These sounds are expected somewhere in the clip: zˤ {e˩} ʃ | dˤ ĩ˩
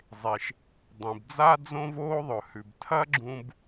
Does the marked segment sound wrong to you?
no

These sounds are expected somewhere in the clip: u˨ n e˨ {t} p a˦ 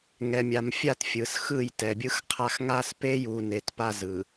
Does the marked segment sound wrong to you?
no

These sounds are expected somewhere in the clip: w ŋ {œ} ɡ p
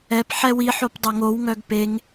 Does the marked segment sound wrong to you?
no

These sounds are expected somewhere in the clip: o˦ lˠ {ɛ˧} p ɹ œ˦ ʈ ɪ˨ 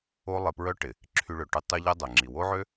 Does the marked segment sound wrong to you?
yes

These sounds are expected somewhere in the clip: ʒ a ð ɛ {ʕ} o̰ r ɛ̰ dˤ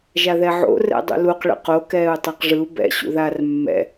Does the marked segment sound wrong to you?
no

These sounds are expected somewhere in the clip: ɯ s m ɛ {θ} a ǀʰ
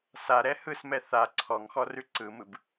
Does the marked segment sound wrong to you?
no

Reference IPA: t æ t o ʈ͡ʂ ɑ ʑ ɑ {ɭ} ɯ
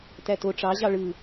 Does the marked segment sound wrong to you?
no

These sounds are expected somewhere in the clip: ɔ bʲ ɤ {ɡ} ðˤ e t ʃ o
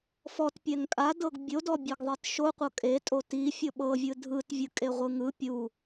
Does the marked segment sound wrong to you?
no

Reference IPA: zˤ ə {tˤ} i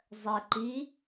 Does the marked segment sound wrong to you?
yes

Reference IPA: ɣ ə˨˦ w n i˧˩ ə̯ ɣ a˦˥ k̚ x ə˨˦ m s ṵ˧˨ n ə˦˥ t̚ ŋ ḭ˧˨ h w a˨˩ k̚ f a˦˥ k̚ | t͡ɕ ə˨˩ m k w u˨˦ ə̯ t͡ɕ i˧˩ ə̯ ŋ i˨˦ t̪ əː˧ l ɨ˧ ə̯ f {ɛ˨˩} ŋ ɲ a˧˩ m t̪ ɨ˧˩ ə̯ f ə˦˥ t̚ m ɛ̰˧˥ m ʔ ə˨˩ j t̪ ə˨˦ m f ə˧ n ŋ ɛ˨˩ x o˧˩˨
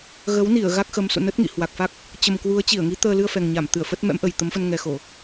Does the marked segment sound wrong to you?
no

